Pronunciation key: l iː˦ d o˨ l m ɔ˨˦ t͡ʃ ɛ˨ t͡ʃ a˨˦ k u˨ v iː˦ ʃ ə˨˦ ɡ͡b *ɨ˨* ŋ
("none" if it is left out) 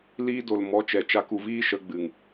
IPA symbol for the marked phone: ɨ˨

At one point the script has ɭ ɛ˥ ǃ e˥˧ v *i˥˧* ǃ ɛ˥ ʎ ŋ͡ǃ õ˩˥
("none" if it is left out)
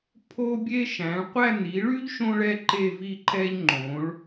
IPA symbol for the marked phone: i˥˧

